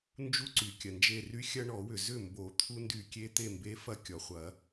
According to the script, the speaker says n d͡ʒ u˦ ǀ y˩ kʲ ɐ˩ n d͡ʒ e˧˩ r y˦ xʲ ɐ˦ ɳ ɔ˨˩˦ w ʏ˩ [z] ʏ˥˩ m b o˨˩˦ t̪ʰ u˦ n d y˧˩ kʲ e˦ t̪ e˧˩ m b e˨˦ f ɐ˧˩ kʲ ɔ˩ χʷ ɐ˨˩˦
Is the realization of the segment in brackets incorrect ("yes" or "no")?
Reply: no